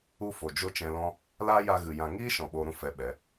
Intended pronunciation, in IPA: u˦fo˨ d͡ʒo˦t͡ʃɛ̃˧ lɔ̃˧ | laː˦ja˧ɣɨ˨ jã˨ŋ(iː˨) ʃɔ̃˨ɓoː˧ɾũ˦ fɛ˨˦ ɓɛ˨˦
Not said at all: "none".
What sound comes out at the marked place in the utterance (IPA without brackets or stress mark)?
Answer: iː˦